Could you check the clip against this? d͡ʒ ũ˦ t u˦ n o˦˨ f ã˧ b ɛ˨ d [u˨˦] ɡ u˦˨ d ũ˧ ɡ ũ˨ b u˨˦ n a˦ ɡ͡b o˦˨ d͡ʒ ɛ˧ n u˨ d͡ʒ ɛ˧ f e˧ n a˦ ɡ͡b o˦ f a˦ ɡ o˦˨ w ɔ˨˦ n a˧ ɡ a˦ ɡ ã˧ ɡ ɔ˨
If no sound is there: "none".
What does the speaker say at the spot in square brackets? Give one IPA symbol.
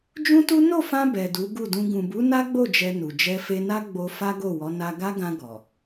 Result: u˨˦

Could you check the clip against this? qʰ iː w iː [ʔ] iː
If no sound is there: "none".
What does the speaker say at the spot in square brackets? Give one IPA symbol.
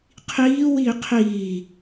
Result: qʰ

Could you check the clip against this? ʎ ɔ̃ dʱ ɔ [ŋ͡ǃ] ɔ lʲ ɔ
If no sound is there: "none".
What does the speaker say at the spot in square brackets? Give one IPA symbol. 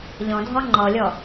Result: ŋ͡ǃ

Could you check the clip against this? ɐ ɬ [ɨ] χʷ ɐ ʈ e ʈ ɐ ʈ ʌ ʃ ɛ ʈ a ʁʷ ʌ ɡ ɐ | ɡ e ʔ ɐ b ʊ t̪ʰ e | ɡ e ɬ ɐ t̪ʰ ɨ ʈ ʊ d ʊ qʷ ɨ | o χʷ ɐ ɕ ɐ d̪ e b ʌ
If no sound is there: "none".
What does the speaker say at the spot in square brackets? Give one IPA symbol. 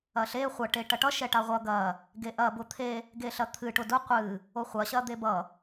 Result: e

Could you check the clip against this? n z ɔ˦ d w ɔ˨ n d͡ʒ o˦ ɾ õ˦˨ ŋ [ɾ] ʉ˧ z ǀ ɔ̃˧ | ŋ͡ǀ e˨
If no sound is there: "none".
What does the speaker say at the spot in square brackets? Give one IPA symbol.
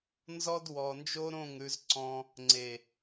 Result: ɾ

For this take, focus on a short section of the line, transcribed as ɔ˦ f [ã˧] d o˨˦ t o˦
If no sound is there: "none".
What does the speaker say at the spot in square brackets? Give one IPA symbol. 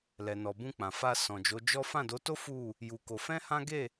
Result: ã˦˨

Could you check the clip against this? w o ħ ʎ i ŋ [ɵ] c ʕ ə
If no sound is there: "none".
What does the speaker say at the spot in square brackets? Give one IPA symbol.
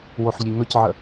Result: ɵ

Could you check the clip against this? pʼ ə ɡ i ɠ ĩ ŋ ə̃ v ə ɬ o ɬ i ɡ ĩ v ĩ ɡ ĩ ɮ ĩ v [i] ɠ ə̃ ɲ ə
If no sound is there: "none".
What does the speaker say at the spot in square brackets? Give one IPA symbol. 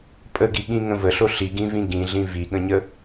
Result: i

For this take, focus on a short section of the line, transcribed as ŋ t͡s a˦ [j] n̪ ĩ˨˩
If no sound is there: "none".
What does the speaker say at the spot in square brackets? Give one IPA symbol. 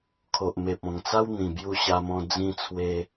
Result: w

